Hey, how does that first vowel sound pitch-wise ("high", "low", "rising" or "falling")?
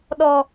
low